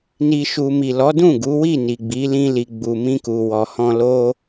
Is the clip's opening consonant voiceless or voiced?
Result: voiced